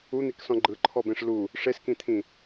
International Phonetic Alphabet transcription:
un̪iksɔ̃ ɡ͡ǃɯǃʰɔbẽʂ lu | ʂeskĩt̪ʰĩ

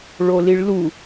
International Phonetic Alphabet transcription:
ɭoliɭlu

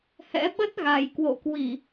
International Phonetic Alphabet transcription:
hɛ̰˧˥ɓə˦˥t̚ɣa˨˩j kwo̰˧˨kwi˧˩˨

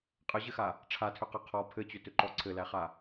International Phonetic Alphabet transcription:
qʼɘʑɘxa | ʈ͡ʂʰatʰʏqɛ qʰɔ pʰɘt͡ɕʏtʏǃɔ ǀʰɘlæχa

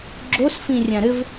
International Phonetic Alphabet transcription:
ɡ͡ǁos fĩrʲãɾɘv

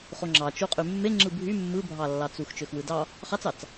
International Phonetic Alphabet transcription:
χoŋ͡ǁɑ t͡ʃuqʼymːe ŋ͡ǁɯbʱy mːɯbʱɑlːɑt͡sux t͡ʃøxwɯdɑ | χɑt͡sɑt͡s

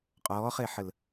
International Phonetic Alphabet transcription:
qʼɔːχeħəl

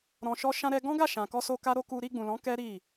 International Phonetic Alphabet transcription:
ɾɔ̃˧ʃɔ˦ ʃã˧ɾɛ˧ɡɔ̃˦ɡa˦˨ ʃã˨kɔ˧so˧ ka˦ɾo˦ ku˧ ɾi˧ɡ͡bũ˨lɔ̃˨˦ kɛ˦ɾi˦˨

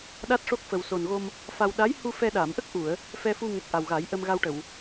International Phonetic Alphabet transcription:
ɗa˦˥t̚ʂo˦˥k̚fə˨˩w so˨˩nɣo˧m | fa˧w ɗa˧˥jhu˧ fɛ˧ɗa˨˩˨m ʔə˦˥k̚ʔu˨˩˨ə̯ | fɛ˧fu˧ŋɛ˨˩k̚ ʔa˨˩wɣa˨˩˦jʔə˧m ɣa˧wʈə˨˩˨w

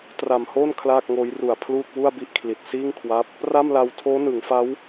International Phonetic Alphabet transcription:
tra˨˩mhoː˥˩n kʰlaː˥˩k̚ŋoː˦˥j ru˨˩a̯ pʰluː˥˩k̚wu˥˩a̯bi˥˩ʔkʰli˨˩t̚ siː˥˩ŋkʰwa˦˥p̚ | ra˥˩mla˧w tʰoː˦˥nɯ˩˦ŋfa˦˥w

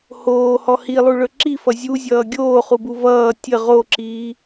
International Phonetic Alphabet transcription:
hoːhɔ hilˠuɭɵ ǁifʌ zʲuzʲʌː ɡʲoːχubu vʌː tʲə ʁoǁiː

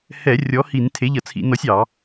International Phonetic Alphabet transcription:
hɛ˧˩˧ rʲɔ˨˥hi˧˩˧n tʰe˨˥ʎʌ˧˩˧t͡sʰḭ˧˩˧nɔ˨˥sʲ ɑ˧˩˧

